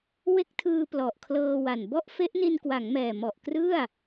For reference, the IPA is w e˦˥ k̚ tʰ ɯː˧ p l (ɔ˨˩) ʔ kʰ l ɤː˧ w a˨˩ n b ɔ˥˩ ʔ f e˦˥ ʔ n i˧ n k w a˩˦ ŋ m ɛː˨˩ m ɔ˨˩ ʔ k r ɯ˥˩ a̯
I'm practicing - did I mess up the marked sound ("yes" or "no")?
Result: no